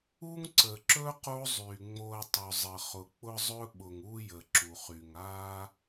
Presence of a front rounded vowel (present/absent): present